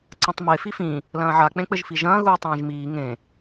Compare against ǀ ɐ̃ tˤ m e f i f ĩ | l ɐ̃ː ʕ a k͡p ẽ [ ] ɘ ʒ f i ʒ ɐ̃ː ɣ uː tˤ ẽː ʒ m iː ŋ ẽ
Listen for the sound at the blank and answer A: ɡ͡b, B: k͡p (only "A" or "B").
B